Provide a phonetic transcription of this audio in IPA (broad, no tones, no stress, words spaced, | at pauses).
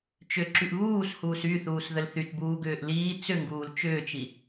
t͡ʃʏǁyʔ βuːshuːs yθuːsðəl θytbuːɡʏːʔ liː t͡sʏŋɡuːl t͡ʃʏːt͡ʃi